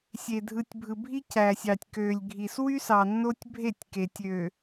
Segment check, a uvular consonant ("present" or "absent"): absent